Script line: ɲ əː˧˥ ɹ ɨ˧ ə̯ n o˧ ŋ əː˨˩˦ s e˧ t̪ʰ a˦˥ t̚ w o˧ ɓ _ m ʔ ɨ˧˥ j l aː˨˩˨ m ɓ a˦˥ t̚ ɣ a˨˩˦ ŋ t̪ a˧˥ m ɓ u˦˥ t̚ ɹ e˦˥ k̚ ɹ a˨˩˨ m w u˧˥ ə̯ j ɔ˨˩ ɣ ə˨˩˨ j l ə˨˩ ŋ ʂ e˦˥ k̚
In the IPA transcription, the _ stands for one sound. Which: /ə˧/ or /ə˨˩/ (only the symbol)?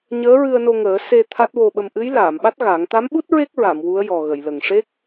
ə˧